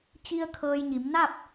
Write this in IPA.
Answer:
t͡ɕ i˧ ə̯ kʰ ɤː˧ j ɲ i˩˧ m n a˥˨ p̚

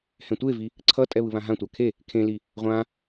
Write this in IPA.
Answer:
h ɛ̃ tʷ e v i | ǀʰ ʌ tʼ ɛ β ɯ β ã ɦ ã tʷ a kʰ e | kʰ ẽ l i | ʁʷ ã

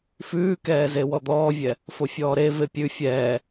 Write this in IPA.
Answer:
f ʉː k ɛː z e w ɔ d̪ ɔː vʲ ɛ | f o fʲ ɔː ɾ e v e pʲ ʉ fʲ ɛː

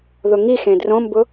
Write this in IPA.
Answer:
ð ʊ ŋ i x ẽ d r õ m b ʊ

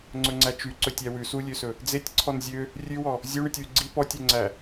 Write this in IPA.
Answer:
ŋ͡ǀ ɵ ŋ͡ǀ æ t͡ʃ y ǀ ɵ tʲ æ w ʉ s u lʲ ø s ɵ | d͡z e tʲ ǀʰ ɔ n zʲ ø | rʲ ʉ w ɔ | zʲ u ɳ y tʲ w y ɡ͡ǀ i p ɔ tʲ ø ŋ͡ǀ æ

